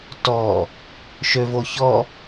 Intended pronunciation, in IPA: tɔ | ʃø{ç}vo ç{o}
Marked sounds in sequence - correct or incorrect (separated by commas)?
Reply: incorrect, incorrect